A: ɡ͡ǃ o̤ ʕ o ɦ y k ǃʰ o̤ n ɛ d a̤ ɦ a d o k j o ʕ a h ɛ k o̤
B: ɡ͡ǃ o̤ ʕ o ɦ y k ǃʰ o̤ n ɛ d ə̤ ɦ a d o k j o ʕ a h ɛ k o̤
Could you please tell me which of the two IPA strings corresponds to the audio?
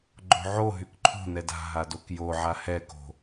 A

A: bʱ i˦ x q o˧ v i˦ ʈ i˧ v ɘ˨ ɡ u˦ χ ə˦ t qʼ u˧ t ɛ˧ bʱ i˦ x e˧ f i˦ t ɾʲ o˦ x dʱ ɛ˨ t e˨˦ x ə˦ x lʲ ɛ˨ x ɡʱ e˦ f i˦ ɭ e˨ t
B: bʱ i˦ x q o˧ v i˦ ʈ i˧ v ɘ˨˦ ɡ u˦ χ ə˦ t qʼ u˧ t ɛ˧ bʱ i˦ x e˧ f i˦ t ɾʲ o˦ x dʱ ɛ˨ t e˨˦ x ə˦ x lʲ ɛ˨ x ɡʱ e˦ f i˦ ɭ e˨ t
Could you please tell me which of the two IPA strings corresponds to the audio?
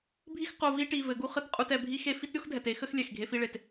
B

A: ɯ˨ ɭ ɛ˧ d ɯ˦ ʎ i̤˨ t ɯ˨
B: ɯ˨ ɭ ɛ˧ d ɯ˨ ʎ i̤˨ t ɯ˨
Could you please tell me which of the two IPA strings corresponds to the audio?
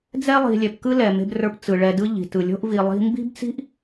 A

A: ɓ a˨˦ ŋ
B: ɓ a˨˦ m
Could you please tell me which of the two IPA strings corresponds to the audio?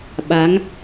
A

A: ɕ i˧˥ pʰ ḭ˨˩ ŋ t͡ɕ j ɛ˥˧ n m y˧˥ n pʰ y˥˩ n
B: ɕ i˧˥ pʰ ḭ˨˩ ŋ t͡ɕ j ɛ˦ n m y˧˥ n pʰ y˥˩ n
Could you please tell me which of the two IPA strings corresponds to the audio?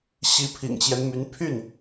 B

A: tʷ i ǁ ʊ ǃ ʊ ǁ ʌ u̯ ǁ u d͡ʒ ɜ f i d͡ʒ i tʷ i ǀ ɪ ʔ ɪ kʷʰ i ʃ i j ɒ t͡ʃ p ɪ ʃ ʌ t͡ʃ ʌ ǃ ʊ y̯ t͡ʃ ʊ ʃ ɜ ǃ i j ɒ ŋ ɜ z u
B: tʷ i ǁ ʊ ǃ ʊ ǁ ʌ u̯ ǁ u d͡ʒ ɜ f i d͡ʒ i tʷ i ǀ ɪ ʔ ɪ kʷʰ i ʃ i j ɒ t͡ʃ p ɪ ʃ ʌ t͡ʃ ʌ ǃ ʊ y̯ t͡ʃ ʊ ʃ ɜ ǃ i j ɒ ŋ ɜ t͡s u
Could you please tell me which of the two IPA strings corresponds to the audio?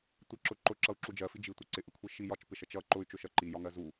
A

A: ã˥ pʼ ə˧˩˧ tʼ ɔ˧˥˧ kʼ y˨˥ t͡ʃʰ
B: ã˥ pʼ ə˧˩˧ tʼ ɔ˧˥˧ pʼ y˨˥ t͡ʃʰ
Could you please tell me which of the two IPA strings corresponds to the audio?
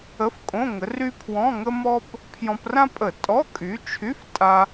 A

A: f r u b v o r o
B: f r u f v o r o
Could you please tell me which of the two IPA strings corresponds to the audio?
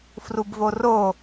A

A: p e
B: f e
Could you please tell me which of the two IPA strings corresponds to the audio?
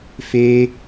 B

